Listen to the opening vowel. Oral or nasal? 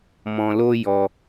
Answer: nasal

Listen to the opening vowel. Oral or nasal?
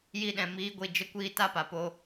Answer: oral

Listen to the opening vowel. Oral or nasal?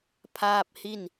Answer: oral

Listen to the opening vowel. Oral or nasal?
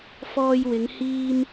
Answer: oral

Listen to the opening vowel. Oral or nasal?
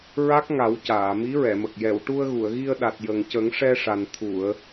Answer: oral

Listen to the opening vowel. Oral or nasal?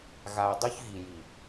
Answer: oral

